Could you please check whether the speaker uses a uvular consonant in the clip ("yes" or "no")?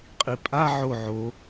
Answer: yes